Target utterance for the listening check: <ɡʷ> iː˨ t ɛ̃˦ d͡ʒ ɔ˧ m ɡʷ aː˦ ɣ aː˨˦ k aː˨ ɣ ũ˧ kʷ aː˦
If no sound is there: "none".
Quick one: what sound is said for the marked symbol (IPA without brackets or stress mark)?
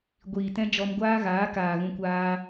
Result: ɡʷ